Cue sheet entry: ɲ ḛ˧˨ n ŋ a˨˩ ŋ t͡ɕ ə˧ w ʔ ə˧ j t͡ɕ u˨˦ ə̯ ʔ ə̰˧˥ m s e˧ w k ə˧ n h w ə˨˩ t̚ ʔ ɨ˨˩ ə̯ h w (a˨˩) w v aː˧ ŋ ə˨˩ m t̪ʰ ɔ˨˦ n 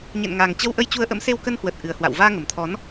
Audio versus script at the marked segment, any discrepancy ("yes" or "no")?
yes